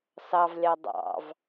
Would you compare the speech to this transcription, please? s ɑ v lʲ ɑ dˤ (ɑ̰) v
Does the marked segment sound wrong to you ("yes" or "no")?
no